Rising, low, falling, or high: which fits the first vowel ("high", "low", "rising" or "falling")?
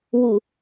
low